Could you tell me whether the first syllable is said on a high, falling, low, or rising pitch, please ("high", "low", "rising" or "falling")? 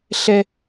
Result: high